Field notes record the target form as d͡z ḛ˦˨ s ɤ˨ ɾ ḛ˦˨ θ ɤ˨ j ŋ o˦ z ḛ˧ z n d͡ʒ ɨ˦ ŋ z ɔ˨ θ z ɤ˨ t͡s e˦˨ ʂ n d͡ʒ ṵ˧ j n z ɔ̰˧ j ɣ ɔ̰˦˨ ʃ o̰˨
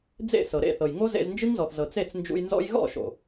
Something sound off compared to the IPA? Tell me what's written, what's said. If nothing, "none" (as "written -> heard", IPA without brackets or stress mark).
ʂ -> t͡s